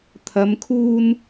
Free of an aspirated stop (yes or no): no